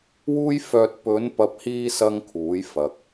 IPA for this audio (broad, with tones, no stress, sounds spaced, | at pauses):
w uː˥ j f œː˧ t̚ p ɵ˨˧ n p ɐ˨ p̚ h iː˧ s ɐ˥ ŋ kʰ uː˨˥ j f ɐ˨ k̚